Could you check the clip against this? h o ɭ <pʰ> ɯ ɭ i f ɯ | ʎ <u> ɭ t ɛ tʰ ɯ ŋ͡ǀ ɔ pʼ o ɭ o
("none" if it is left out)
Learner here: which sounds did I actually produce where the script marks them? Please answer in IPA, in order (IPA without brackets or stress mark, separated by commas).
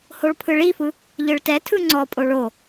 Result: pʰ, ɯ